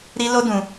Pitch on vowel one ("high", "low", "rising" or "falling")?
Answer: high